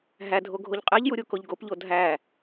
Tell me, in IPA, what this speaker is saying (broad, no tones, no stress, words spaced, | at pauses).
ɦædʱo ɡʱoʎqʼeʎju ɾʲukoʎɡopʎo dʱæ